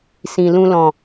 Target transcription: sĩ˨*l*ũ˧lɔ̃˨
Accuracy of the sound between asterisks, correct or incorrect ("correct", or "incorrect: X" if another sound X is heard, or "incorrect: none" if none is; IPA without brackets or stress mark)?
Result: correct